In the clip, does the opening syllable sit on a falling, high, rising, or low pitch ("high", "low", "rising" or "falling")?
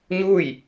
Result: falling